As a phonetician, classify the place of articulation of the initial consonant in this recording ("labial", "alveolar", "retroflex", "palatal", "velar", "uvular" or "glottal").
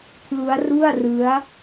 velar